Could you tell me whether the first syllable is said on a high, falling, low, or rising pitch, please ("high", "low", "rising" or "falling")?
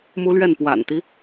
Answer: high